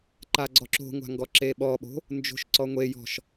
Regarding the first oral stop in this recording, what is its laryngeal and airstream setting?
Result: click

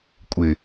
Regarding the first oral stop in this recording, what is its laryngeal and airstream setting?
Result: ejective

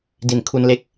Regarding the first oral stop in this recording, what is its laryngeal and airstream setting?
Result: plain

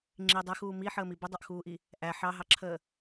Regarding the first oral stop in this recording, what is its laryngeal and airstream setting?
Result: click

